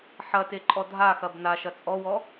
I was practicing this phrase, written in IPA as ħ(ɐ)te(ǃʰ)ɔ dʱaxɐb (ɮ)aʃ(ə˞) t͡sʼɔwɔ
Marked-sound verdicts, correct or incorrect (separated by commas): correct, incorrect, incorrect, incorrect